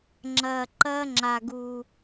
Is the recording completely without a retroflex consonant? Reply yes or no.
yes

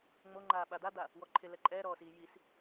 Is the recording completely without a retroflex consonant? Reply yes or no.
yes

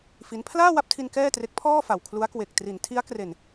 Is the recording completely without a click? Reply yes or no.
yes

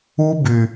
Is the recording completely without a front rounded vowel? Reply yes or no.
no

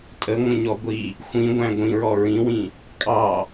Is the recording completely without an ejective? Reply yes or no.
no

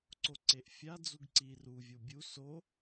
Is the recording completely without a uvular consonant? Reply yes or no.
yes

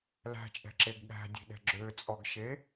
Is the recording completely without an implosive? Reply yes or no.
no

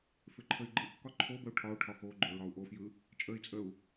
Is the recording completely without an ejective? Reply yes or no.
no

